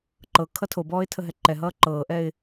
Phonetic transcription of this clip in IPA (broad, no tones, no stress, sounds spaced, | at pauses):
ǃ ɤ kʰ ʌ tʰ o b ɔː ɪ̯ tʰ ə ɦ ɛ ǃ ɛ ɦ ʌː ǃ ɤː ʔ ɛ ɪ̯